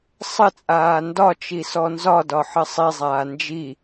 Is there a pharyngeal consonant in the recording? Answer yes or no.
yes